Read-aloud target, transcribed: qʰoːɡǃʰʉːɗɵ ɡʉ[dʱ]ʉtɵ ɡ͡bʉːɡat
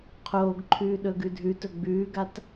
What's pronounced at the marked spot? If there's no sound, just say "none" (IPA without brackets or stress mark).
dʱ